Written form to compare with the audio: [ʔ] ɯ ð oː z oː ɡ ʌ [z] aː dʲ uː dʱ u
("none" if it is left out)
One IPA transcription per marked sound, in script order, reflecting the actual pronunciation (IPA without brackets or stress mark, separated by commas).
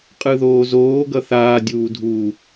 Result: qʼ, θ